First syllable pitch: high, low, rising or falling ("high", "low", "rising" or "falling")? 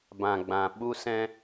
low